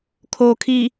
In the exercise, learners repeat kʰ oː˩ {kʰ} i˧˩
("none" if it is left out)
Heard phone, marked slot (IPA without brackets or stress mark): kʰ